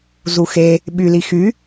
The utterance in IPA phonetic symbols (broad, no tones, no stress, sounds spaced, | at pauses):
z u x e | ɓ y l i x y